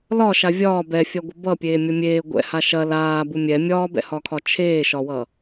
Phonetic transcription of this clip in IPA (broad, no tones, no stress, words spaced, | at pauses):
lɒʃa vʲɒː bɛfʲɐɡʷə bʌpʲeːmʲʌ mʲeː ɡʷɛ̰ha ʃɐ laːbu mʲɛ mʲɒːbɛ̰hɒkʰɒ t͡ʃʰeːʃɒwʌ